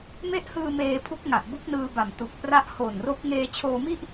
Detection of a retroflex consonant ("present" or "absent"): absent